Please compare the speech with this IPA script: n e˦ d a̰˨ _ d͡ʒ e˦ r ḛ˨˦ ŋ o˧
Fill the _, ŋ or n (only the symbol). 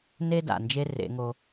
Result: n